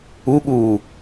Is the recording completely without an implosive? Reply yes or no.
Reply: no